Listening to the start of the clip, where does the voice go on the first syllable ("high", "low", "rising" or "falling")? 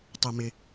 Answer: low